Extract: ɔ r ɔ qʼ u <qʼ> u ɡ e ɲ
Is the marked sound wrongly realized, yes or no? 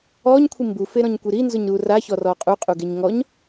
no